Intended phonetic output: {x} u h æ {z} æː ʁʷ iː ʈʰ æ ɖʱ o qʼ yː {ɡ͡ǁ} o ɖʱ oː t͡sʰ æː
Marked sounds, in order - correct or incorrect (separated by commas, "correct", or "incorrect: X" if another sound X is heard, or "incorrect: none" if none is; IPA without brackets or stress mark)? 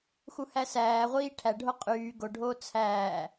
correct, incorrect: s, incorrect: ɡ